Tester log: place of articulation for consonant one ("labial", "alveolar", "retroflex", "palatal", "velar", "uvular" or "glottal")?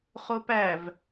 uvular